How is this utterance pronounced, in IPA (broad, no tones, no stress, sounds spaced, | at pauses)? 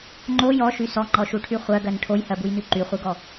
ŋ͡ǃ o j ɔ ʃ y s ɔ ŋ͡ǃ ɔ ʃ u ʈʰ y χʷ ɜ ɡ ɜ n ʈʰ o j h ɜ b u j n y ǃ y χʷ i ɡ ɔ